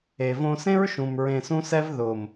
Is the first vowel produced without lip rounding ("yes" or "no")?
yes